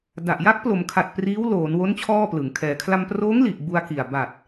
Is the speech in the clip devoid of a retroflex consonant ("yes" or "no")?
yes